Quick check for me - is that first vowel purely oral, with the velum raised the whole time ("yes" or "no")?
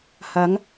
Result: yes